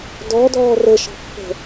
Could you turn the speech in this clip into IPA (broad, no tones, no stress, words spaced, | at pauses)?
dɔdɔː rəʃɔ̤ pːə̤